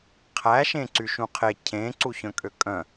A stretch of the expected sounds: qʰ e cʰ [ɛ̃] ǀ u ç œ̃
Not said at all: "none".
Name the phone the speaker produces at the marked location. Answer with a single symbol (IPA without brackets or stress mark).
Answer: ẽ